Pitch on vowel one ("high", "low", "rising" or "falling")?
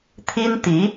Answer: high